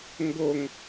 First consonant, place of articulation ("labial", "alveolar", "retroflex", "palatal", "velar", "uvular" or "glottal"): velar